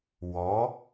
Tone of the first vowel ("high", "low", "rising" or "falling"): rising